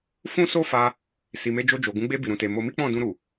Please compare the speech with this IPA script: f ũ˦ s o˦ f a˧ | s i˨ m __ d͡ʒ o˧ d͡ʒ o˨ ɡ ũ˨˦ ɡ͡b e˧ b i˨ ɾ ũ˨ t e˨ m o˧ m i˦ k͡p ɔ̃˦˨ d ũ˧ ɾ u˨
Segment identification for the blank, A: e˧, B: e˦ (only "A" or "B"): A